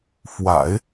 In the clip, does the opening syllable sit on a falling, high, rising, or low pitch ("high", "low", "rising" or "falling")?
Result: low